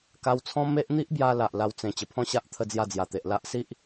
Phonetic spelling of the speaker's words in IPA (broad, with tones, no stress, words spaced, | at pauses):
ka˧wt͡sʰɔ̃˦me˦ʔ n̪i˦ʔbja˧ la˨ʔla˧w t͡sẽ˨˩ t͡ɕə˨˩pʰɔ̃˥˧ɕa˦ʔ t̪ʰə˥˧d͡zja˥˧d͡zja˨˩t̪e˨ʔ la˦ʔ si˦ʔ